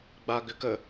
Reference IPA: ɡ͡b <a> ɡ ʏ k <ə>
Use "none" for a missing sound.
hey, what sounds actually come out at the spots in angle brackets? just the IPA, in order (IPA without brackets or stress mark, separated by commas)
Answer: a, ə